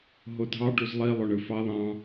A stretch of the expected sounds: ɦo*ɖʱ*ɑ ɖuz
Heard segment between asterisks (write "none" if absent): dʱ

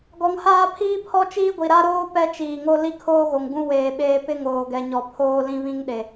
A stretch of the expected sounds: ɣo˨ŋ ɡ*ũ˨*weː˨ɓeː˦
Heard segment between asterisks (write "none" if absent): ũ˦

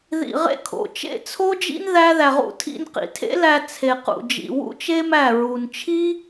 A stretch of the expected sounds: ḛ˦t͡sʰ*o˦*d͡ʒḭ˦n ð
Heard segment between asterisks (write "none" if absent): o˦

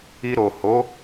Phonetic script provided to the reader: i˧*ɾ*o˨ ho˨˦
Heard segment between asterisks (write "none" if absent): ɾ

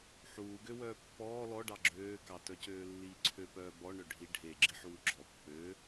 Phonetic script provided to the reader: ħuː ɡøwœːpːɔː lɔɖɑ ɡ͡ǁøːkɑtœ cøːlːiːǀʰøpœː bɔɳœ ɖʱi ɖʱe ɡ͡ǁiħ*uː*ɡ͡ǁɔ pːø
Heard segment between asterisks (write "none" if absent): uː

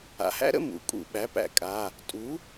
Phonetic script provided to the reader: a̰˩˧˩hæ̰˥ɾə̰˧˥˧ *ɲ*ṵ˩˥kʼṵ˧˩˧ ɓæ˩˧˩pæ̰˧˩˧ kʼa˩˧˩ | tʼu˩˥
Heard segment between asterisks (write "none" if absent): m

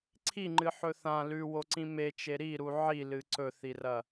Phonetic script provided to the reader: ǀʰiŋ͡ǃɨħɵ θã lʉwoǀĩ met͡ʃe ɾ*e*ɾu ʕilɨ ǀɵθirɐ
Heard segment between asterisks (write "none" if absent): i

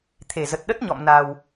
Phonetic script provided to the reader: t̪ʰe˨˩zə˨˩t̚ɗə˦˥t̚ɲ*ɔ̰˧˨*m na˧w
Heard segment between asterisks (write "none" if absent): ɔ̰˧˨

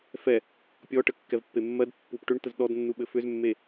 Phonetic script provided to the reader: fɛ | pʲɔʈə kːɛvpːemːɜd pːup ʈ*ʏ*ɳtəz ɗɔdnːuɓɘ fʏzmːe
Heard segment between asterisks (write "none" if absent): ʏ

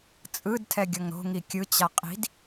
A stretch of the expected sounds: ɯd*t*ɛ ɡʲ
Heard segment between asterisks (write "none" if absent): tʰ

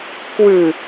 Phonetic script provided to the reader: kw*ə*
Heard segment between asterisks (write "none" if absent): ʉ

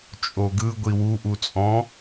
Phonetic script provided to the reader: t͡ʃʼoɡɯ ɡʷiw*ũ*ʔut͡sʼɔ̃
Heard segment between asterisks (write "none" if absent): u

